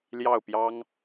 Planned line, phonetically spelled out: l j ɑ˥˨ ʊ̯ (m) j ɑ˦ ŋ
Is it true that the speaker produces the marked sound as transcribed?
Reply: no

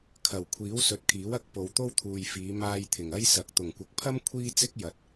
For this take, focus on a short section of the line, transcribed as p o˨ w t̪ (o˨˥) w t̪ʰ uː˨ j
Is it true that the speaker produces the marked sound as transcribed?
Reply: no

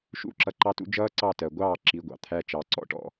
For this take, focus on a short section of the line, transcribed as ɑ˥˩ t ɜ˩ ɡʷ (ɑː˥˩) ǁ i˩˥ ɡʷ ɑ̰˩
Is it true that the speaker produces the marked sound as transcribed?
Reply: yes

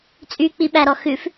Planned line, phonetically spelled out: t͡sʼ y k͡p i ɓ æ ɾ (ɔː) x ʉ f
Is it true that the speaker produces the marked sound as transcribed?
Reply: no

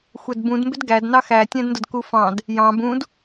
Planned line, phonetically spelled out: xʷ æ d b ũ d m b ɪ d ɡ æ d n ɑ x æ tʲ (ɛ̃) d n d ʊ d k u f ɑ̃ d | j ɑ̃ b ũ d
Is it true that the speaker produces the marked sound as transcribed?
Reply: no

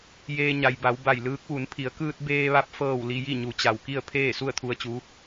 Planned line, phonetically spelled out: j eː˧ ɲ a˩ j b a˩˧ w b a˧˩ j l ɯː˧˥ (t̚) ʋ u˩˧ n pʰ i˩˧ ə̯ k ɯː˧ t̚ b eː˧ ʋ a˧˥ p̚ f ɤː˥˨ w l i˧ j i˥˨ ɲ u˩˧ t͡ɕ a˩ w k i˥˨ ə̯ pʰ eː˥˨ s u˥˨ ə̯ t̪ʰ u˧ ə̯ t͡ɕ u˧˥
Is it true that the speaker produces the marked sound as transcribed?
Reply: no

